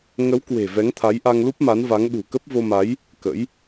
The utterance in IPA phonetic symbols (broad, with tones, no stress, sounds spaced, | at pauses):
ŋ ə˨˦ w k w e̤˨˩ v ɛ˨˦ ŋ t̪ʰ a˨˦ j ʔ a˧ ŋ l u˦˥ p̚ m a˨˦ n v a˨˦ ŋ ɗ ṳ˨˩ k ə˦˥ p̚ v o˧ m a˨˦ j | k ə̰˧˥ j